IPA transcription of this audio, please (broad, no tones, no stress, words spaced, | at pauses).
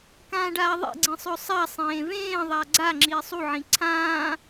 kãːɖaːðˤḛɡ͡ǀĩ sˤɵsˤasˤẽː vẽːðˤa ɡ͡ǀa ŋ͡ǁiːsˤuʕĩ ǀʰãː